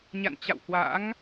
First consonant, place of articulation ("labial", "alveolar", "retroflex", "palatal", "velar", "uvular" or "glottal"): palatal